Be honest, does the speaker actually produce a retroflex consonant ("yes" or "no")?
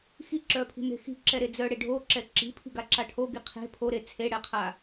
yes